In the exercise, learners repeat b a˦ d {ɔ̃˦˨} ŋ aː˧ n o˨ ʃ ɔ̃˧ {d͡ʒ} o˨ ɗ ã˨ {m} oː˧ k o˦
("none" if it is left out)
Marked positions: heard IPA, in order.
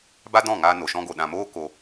ɔ̃˦˨, ɡ, m

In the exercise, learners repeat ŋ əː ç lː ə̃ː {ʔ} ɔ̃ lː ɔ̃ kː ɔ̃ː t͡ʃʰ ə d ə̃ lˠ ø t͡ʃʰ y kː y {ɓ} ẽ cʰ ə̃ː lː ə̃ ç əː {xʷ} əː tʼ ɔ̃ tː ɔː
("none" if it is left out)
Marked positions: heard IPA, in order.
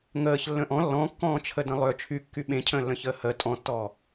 ʔ, ɓ, h

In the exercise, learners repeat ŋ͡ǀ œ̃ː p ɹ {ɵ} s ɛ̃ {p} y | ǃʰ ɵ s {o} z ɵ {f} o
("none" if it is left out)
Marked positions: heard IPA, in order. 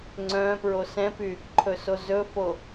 o, p, o, f

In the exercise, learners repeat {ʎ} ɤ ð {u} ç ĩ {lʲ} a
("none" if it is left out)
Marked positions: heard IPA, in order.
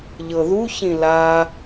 ʎ, u, l

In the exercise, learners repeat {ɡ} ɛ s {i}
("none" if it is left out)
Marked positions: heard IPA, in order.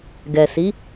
ɡ, i

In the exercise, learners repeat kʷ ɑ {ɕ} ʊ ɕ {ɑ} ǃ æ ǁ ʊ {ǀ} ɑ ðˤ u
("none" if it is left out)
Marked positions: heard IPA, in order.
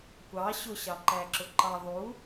ɕ, ɑ, ǃ

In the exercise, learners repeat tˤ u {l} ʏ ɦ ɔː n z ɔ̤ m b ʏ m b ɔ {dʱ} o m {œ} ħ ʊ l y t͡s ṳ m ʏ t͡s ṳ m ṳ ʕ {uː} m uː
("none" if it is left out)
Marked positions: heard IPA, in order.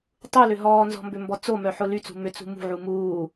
l, t͡s, œ, u

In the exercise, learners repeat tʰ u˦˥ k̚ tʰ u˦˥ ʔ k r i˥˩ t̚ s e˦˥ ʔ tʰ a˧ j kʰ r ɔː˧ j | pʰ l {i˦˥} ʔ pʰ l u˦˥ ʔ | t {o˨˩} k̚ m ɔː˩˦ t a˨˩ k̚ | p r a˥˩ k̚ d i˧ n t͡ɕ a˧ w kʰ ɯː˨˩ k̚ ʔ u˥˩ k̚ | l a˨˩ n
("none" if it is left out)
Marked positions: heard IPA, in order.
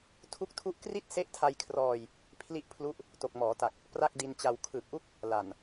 i˦˥, o˨˩

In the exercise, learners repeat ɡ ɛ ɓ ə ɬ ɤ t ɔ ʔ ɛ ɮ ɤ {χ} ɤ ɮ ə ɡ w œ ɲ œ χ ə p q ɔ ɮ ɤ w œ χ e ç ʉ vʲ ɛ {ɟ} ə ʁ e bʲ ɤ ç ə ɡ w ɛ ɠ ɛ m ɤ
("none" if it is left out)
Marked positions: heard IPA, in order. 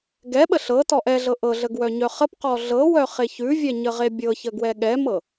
ʔ, ɲ

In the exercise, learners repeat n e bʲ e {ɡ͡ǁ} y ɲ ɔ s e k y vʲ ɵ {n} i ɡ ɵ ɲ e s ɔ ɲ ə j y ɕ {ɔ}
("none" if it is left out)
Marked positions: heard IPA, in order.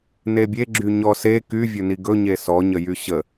ɡ͡ǁ, n, ə

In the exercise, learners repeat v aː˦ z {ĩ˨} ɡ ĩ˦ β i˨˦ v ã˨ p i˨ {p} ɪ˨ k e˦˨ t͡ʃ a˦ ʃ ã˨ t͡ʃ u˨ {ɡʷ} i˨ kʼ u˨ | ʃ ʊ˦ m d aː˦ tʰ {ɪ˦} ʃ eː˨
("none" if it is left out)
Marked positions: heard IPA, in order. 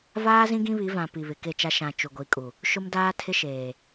ĩ˦, β, ɡʷ, ɪ˦

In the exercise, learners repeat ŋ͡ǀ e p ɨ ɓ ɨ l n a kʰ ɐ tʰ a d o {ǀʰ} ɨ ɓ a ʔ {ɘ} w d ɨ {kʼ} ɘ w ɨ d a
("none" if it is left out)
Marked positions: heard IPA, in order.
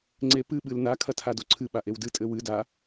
ǀʰ, e, tʼ

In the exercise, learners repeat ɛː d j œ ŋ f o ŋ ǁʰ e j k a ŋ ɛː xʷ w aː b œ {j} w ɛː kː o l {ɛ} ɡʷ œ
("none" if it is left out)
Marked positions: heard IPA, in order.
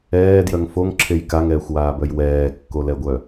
j, ɛ

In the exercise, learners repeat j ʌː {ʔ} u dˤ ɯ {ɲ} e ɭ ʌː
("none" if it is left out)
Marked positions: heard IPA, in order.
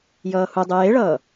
h, j

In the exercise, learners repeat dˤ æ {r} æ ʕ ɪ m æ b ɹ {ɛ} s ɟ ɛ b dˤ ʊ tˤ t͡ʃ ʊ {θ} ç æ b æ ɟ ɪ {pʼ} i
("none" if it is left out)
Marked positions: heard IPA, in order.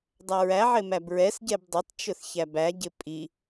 ɹ, ɛ, θ, pʼ

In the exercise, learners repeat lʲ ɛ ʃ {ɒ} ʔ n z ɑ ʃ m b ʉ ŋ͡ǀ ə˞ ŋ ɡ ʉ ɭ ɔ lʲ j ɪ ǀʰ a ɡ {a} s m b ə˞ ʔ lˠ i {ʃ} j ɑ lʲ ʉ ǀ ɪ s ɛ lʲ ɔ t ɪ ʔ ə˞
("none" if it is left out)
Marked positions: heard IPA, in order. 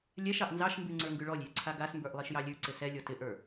ɑ, a, ʃ

